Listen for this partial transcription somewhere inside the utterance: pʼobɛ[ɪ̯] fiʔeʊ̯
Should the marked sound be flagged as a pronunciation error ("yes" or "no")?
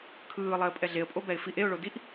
no